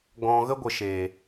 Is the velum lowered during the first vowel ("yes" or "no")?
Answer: yes